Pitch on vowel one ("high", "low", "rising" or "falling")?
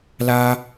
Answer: high